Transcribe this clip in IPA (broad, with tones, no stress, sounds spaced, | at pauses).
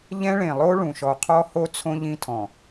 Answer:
ʎ ɛ̃˦ ɭ ẽ˨ lˠ o˦ ɭ ũ˨ ʃ ɔ˨ qʰ ɔ˦ h o˦ t͡sʰ õ˦ ʎ ĩ˦ tʰ ɔ̃˨